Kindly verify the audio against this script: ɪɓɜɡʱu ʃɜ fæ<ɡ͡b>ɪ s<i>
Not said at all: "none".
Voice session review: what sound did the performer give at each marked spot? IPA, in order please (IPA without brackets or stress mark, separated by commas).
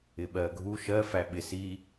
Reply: ɓ, i